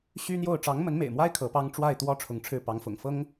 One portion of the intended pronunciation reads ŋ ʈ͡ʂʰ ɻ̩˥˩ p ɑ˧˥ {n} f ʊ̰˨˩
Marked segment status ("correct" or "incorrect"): incorrect